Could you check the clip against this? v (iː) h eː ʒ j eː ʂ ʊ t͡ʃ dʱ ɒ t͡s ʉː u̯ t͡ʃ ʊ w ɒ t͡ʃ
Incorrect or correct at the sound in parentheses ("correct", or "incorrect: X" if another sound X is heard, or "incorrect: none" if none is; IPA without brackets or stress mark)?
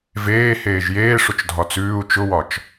incorrect: eː